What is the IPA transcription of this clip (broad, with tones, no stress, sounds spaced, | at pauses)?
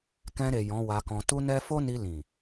k ɛ̃˧ ɾ e˨ j ɔ̃˨˦ w a˧ k ɔ̃˧ t u˦ n ɛ˦ f o˦ n i˧ l ĩ˨